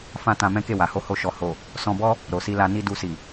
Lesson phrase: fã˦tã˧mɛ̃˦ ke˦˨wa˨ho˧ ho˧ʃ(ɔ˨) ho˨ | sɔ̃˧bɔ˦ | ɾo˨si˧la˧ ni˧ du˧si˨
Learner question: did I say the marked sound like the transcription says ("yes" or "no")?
yes